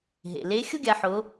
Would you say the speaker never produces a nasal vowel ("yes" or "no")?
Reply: yes